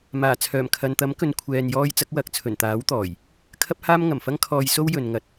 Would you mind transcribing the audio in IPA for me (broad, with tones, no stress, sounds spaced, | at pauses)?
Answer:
m aː˨˩ t͡sʰ œː˨˩ m kʰ ɐ˨ n t̪ ɐ˨˥ m k ɵ˨ n kʷʰ ɛː˨ n j ɔː˧ j t͡s ɐ˨˥ k̚ w ɐ˨˥ k̚ t͡sʰ ɵ˨˩ n t̪ aː˨˥ w t̪ ɔː˨˩ j | kʰ ɐ˥ p̚ h aː˥ m ŋ ɐ˨˩ m f ɐ˧ ŋ kʰ ɔː˨ j s o˧ w j ɵ˨ n ŋ ɐ˨˥ t̚